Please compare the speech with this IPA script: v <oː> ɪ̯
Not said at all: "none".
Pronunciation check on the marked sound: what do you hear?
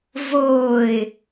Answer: oː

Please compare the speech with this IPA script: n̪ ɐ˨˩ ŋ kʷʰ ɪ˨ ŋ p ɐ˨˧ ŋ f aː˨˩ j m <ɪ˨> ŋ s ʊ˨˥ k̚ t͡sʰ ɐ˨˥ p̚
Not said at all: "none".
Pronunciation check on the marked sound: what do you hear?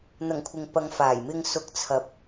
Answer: ɪ˨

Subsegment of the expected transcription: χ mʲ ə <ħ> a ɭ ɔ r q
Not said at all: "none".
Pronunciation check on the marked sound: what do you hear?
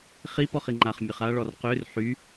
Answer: χ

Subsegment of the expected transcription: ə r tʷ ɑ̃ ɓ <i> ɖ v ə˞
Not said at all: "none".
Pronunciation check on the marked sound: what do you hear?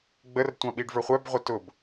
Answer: i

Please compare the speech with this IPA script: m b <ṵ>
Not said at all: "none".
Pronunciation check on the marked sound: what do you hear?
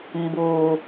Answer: u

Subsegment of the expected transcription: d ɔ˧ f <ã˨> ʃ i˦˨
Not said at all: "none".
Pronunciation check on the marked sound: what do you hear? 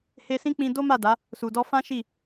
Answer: ã˦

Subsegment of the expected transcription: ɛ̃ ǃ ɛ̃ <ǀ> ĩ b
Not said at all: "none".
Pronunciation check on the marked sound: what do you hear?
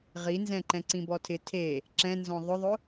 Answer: ǀ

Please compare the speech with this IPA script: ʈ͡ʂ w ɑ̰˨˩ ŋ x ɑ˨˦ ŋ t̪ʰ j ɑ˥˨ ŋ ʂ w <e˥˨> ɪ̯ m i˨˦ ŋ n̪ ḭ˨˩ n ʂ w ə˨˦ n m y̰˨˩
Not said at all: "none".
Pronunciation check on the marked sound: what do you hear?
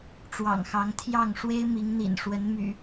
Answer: e˦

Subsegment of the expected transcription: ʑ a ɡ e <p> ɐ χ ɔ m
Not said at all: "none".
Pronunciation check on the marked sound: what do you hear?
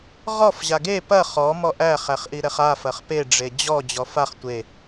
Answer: p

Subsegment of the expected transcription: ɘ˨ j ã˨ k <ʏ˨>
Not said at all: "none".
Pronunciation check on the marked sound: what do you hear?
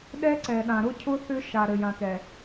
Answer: ɛ˨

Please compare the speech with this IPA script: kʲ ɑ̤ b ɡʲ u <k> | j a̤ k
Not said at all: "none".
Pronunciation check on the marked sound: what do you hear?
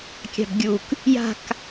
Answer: k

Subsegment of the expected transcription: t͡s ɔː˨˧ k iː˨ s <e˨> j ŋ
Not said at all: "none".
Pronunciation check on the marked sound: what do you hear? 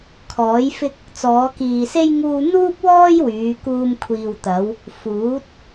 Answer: e˥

